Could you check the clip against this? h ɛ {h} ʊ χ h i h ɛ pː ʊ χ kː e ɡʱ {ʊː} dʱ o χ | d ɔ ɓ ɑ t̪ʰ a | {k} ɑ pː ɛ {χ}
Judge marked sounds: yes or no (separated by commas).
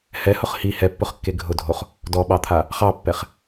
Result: yes, no, no, yes